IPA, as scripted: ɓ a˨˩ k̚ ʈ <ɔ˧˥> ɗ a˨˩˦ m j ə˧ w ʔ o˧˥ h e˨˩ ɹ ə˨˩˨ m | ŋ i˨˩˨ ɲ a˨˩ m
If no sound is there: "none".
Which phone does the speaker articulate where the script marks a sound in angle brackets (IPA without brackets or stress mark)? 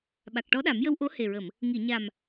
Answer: ɔ˧˥